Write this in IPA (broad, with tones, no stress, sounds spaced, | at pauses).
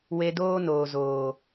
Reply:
w e˧ d oː˦ n oː˨ z oː˨